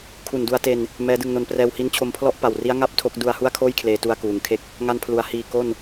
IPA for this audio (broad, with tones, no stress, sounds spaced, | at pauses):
kʰ u˨˩ n d u˧ a̯ t e˧ n | m ɛː˦˥ d ɯ˧ ŋ n o˧ n p r ɛː˧ w h i˦˥ n t͡ɕʰ o˧ m pʰ l ɔ˥˩ ʔ p a˨˩ w r i˦˥ a̯ ŋ a˥˩ p̚ tʰ o˦˥ k̚ d u˧ a̯ h u˥˩ a̯ kʰ oː˥˩ j kʰ l eː˧ t u˧ a̯ k uː˩˦ ŋ kʰ e˦˥ k̚ | ŋ a˧ n pʰ l u˩˦ a̯ h iː˨˩ k o˥˩ n